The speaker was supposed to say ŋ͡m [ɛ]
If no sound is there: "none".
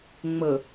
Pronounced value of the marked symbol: ə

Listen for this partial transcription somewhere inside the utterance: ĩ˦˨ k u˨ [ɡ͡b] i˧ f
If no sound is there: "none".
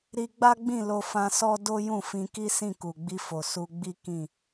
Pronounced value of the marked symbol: ɡ͡b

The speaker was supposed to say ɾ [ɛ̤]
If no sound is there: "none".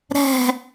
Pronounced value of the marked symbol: ɛ̤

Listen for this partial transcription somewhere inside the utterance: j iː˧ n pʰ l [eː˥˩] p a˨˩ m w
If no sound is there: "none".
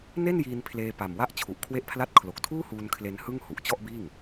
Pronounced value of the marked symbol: eː˧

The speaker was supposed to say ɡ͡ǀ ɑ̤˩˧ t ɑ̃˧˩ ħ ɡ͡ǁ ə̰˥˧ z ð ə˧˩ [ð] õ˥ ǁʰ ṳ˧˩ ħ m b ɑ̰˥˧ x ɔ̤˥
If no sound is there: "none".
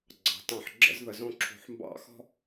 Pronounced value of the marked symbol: z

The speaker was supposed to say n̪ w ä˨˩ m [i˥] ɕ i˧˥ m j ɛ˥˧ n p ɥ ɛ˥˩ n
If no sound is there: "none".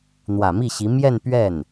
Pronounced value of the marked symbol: i˥˩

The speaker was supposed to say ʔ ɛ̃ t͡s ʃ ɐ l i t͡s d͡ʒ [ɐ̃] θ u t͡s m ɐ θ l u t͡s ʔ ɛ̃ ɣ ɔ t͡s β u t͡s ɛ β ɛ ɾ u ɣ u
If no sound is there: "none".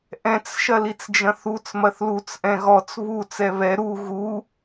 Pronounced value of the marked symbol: ɐ̃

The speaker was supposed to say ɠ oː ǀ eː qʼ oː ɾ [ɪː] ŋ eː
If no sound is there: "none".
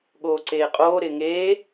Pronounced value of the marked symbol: ɪː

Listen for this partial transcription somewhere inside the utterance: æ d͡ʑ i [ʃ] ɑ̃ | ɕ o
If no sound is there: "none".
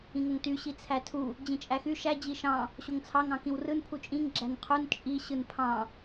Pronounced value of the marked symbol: ʃ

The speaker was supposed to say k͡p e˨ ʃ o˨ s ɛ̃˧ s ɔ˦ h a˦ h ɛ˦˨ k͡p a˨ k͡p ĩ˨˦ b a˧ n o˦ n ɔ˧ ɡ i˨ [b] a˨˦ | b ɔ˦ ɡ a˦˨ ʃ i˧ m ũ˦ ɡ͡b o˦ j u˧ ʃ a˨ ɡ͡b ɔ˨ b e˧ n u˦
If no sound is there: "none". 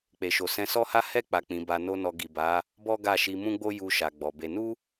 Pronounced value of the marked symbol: b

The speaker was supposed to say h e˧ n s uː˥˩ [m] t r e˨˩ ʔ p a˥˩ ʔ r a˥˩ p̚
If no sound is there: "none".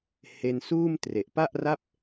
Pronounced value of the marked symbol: m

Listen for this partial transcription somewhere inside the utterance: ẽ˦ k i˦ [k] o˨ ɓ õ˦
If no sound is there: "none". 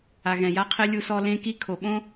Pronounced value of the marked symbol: kʰ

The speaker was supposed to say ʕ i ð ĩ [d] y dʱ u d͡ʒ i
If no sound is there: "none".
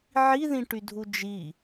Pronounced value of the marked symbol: ʈ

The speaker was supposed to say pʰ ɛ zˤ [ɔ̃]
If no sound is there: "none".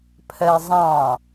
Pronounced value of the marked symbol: ɑ̃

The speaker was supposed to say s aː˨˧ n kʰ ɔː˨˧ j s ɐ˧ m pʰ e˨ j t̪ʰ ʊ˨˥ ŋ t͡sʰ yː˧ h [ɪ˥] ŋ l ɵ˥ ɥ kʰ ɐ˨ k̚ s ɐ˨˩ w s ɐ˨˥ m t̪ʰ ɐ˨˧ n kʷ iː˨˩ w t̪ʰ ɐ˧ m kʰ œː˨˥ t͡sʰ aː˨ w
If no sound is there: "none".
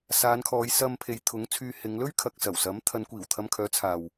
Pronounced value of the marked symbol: ɪ˨˧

